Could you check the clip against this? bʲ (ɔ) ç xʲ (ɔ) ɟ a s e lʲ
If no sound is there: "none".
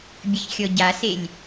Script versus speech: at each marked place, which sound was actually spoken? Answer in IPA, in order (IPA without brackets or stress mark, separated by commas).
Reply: ə, ɔ